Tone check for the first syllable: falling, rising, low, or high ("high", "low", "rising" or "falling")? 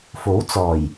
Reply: rising